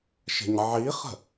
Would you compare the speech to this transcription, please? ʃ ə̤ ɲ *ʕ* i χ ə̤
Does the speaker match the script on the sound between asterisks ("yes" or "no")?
yes